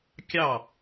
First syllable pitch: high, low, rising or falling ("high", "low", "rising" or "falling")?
falling